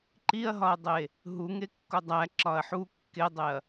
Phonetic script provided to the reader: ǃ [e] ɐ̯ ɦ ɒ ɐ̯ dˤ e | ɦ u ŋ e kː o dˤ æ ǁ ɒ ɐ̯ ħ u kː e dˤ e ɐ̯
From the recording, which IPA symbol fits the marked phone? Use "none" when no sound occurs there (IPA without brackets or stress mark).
i